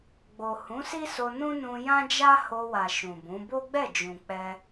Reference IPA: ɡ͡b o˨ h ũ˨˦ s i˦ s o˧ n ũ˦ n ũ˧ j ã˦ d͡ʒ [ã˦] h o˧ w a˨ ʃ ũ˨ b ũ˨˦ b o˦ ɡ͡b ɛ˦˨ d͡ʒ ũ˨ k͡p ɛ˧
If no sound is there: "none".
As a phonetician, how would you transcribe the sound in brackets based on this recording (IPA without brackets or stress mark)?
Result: a˦